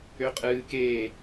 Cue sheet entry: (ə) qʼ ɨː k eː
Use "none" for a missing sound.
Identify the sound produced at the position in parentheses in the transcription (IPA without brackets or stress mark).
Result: ø